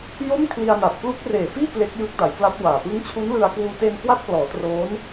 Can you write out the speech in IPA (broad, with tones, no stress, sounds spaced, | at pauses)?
j o˥˩ m kʰ l i˧ a̯ n a˨˩ t̚ k l u˦˥ k̚ r eː˨˩ f iː˥˩ k l e˦˥ k̚ j ɯː˦˥ k̚ d a˩˦ j k l a˦˥ t̚ w aː˨˩ p ɯ˦˥ ŋ t͡ɕʰ u˦˥ n l ɯ˧ a̯ k w uː˧ t e˧ n k w a˦˥ t̚ k l ɔː˩˦ t r oː˦˥ n